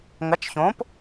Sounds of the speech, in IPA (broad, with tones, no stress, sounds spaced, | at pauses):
ŋ ɐ˨˥ t͡ʃ ç õː˨˥ p